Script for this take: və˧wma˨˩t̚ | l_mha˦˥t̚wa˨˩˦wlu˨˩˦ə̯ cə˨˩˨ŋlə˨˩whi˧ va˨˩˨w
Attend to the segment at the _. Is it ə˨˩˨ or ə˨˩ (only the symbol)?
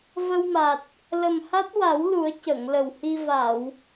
ə˨˩